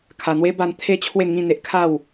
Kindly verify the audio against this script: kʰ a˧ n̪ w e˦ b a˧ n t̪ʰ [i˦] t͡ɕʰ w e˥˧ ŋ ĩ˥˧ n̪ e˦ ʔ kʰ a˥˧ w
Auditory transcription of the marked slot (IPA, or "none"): e˦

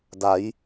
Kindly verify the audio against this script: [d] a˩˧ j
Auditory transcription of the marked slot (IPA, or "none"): d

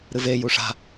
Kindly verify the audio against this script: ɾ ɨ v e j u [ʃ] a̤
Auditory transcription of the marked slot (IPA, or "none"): ʂ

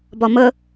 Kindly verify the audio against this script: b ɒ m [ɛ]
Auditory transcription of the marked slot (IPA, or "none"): ə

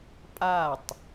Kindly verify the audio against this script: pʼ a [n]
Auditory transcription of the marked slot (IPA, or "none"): tˤ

